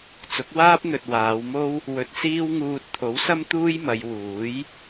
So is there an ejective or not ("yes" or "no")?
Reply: no